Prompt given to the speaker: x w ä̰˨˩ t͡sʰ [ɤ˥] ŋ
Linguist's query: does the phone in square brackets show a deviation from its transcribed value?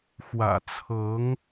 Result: yes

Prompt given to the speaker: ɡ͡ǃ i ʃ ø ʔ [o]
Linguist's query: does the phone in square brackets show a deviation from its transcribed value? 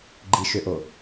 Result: no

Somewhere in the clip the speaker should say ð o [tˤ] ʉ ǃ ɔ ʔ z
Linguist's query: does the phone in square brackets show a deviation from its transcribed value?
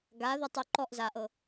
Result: no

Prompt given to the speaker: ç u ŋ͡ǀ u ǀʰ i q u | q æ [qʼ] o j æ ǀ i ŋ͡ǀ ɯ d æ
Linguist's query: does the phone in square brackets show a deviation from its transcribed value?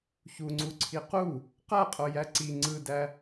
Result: no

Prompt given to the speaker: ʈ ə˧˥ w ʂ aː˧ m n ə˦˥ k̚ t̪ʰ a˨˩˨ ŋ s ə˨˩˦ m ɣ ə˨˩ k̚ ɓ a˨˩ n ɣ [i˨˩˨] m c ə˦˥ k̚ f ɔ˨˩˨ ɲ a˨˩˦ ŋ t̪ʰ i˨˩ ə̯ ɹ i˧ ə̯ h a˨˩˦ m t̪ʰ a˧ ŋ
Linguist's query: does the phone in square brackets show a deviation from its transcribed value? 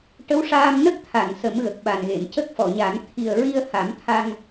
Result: yes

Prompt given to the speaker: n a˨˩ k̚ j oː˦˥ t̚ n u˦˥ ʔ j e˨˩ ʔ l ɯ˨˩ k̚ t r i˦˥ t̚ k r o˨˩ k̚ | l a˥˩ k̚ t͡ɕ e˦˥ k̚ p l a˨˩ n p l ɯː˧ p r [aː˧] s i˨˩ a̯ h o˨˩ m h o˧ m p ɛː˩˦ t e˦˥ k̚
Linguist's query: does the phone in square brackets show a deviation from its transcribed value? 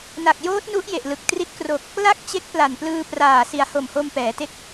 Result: yes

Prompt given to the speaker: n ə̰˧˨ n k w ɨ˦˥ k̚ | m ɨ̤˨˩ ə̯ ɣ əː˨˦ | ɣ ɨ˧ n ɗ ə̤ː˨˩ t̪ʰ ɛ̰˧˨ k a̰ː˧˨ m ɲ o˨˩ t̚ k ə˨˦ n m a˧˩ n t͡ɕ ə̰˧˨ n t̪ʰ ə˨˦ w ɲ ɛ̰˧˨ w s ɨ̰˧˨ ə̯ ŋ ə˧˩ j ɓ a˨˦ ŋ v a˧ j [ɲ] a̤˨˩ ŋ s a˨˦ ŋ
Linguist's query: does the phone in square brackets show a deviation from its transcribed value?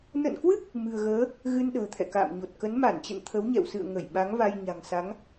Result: no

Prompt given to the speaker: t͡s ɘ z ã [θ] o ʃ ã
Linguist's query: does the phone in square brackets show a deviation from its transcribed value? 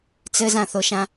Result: no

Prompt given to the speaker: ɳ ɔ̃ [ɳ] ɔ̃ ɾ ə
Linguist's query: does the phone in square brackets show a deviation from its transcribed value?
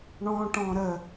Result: yes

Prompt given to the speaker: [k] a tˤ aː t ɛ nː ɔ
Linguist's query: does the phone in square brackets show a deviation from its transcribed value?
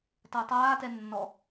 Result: yes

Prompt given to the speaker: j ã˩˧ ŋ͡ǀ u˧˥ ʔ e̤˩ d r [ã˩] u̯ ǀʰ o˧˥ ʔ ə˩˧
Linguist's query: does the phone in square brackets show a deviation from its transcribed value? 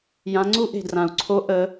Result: no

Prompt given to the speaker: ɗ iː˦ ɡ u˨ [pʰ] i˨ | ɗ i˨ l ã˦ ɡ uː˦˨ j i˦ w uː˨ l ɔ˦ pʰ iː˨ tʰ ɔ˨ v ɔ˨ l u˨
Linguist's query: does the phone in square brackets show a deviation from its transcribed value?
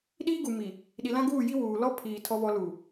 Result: yes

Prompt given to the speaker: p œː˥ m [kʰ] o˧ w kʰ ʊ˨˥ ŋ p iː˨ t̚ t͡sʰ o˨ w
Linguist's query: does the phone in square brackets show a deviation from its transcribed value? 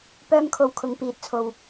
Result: no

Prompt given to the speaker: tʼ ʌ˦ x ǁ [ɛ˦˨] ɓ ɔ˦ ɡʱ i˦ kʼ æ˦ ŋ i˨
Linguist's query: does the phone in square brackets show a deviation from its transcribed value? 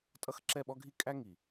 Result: no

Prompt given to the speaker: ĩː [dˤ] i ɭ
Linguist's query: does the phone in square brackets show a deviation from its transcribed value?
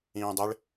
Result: no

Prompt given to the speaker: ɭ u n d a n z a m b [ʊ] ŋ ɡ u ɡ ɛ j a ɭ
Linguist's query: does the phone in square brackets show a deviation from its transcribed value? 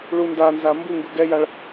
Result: yes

